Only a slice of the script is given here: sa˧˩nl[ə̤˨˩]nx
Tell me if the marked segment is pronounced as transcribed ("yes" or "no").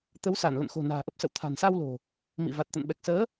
no